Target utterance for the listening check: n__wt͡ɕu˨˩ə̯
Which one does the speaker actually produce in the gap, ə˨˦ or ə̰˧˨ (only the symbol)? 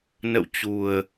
ə̰˧˨